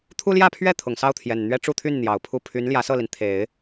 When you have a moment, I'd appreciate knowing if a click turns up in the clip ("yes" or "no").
no